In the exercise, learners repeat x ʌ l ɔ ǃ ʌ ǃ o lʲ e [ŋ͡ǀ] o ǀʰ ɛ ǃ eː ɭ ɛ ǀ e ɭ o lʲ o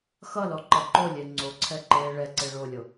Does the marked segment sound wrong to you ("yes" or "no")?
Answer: no